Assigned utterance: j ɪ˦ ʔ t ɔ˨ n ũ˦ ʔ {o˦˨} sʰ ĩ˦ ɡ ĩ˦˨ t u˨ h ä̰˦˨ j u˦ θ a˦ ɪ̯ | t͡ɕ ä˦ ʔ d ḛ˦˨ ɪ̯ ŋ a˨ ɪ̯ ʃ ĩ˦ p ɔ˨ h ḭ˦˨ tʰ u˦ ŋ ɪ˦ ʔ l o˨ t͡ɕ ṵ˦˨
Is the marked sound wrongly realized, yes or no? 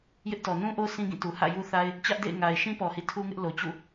yes